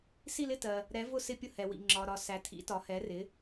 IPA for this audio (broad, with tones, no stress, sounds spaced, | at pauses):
s i˥˧ l ɪ˥˧ t ɜ˨ | ɾ ɛ˨˥ v ʊ˥˧ s ɪ˥˧ pʲ ʊ˥˧ h ɛ˨ w ḭ˨ ŋ͡ǁ ɒ˨ ɾ ɒ˨ s æ˨ tʰ ḭ˨˥ t ɒ˨˥ h ɛ˨˥ r ɪ˨˥